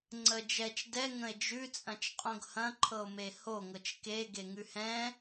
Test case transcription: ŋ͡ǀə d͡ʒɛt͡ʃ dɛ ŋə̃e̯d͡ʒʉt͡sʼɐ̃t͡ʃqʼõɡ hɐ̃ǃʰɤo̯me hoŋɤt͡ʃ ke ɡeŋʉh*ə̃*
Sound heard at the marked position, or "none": ɛ̃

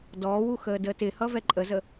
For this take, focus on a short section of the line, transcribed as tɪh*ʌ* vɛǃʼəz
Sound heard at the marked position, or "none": ʌ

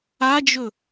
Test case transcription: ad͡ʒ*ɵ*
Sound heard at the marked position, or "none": ɵ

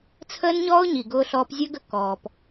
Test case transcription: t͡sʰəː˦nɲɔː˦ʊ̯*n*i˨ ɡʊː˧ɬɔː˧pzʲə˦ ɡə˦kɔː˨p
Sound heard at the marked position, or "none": ɲ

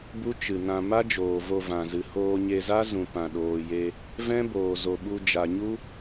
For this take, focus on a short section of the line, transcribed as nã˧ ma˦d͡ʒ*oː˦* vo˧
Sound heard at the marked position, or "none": oː˨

